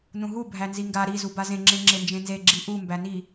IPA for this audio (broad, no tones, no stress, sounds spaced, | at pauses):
n ũ ɦ u bʱ æ n z i ŋ ɡ a ɾ i z u b a z ẽ ŋ͡ǁ ẽ ŋ͡ǁ e n d͡ʒ ẽ n z e ɡ͡ǁ i ʔ u m b æ n i